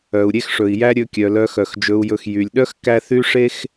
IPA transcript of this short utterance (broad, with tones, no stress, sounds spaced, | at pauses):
œ˩ u̯ ɾʲ e˦ x ʂ ɵ˩ i̯ j æ˦ ɾʲ ɵ˨ kʲ œ˩ l œ˨ x œ˩ x d͡ʒ ɵ˨ u̯ j ɵ˨ x j y˩ lʲ ɗ œ˥ x k æ˦ θ y˥ ʂ e˥ x